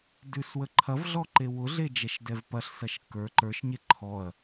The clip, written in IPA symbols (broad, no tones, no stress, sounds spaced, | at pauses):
d ʉ s w ə ǃʰ ɐ v ɮ ɔ ǃ e w ʊ ɮ e d͡ʒ ɛ ʃ d ɛ v p ɐ ɬ s ɐ ʃ kː ə˞ ǃ ə˞ ʃ ɲ e ǃʰ ɔ ɐ̯